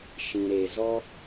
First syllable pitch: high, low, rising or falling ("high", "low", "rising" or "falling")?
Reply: low